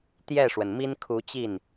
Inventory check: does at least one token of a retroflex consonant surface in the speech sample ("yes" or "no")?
yes